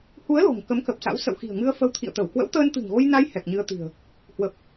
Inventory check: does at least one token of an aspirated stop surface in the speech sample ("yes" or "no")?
yes